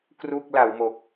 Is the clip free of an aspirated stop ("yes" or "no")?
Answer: yes